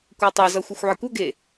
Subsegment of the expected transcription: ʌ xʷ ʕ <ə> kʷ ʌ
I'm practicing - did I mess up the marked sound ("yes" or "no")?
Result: no